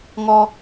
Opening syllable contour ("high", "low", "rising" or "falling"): high